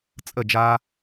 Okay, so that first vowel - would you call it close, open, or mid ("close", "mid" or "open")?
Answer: mid